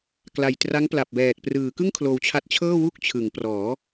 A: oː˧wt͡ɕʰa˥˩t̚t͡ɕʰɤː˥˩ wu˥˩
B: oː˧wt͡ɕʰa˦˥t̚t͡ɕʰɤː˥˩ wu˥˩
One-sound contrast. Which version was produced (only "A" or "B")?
B